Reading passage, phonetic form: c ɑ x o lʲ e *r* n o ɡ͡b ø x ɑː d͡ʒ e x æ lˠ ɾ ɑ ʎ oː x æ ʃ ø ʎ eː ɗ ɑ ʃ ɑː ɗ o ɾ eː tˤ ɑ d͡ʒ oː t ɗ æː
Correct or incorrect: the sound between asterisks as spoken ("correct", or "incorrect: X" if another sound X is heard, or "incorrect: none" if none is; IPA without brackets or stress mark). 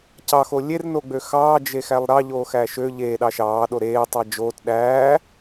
correct